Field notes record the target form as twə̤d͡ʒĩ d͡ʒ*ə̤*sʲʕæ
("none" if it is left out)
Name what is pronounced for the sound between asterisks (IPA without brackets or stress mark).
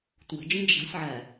a̤